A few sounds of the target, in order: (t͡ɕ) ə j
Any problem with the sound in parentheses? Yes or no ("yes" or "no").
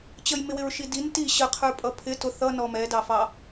no